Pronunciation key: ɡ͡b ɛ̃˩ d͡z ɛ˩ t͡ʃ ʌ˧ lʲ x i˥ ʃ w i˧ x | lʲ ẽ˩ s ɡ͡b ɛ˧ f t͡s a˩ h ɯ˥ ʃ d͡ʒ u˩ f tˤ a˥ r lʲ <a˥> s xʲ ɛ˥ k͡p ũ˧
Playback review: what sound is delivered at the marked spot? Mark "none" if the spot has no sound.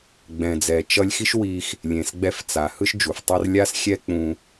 a˥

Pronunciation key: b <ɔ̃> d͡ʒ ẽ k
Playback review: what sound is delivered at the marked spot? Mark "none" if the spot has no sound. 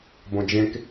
õ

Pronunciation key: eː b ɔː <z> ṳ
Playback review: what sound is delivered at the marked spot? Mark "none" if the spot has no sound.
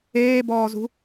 z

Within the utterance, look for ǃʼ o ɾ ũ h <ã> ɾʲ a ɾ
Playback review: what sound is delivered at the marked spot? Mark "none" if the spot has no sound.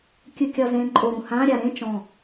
ã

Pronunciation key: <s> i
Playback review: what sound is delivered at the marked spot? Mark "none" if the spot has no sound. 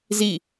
z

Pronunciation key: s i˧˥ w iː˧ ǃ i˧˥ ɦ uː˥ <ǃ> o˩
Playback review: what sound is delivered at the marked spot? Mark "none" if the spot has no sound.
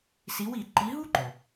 ǃ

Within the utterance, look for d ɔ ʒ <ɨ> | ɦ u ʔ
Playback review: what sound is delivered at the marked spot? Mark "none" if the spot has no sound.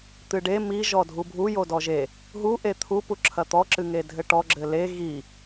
e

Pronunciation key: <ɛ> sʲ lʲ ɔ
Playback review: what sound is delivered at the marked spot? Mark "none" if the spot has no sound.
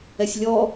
ɛ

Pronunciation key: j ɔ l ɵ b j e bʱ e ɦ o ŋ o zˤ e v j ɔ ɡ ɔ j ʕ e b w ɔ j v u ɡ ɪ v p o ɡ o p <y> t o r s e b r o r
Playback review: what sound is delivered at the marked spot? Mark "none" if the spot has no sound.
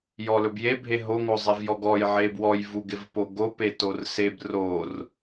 e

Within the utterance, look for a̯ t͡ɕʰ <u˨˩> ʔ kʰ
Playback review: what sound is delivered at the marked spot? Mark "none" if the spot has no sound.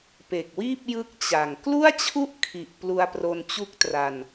u˥˩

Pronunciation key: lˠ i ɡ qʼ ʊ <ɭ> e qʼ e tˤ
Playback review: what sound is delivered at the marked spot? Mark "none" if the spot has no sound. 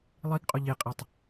ʎ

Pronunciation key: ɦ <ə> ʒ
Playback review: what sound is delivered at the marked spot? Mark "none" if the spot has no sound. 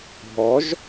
ɔ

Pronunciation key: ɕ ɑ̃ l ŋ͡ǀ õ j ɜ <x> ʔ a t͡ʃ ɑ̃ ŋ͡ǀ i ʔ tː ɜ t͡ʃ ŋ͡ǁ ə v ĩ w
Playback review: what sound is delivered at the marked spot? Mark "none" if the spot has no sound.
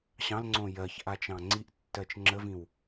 ç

